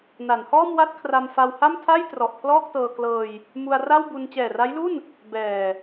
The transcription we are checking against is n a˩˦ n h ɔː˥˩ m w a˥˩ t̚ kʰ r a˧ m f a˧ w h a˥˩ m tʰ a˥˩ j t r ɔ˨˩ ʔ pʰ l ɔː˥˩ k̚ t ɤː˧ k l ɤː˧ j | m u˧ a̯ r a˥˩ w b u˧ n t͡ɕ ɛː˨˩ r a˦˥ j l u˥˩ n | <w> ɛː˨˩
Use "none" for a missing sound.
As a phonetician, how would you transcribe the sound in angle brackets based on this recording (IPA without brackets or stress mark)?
b